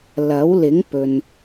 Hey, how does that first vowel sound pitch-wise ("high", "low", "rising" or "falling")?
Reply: rising